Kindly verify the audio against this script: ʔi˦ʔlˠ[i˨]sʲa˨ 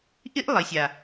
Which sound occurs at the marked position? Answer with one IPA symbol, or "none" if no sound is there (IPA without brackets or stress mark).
i˨